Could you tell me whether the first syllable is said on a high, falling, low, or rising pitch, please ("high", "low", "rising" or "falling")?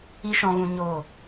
high